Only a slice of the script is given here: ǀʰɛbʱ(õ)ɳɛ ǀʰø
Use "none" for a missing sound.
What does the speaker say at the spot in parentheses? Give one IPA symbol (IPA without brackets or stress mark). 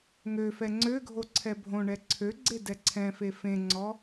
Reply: õ